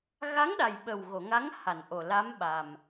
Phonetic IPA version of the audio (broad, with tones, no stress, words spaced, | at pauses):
ɣa˧˥ŋɗa˨˩jɓə˨˩w ɣo˨˩˨ŋa˧˥ŋ ha˨˩˨nʔo˨˩la˧˥m ɓa˨˩m